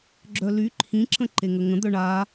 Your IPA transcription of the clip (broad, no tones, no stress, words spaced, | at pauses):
ɡ͡ǁœly ǃʰĩ ǁə̃ǃeŋəŋə̃ d̪œɳa